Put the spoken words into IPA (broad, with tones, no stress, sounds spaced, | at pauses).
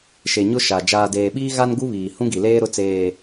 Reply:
ʃ e˨ ɲ ʊ˦ ʃ a˨ d͡ʒ aː˨ d eː˨ ɓ iː˦ ɣ a˦ n ɡ u˦ β iː˨ h ũ˦ ɡ i˨ l eː˦ ɾ ʊ˦ t͡s eː˨